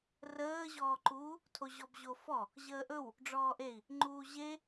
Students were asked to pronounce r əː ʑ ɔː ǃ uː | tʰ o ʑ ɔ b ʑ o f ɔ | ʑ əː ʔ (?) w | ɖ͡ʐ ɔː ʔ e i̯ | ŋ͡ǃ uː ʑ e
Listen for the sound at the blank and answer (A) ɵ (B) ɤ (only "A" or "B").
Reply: A